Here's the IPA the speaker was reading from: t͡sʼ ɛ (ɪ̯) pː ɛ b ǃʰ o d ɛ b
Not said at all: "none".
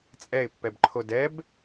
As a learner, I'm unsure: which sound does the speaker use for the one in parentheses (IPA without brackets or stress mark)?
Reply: ɪ̯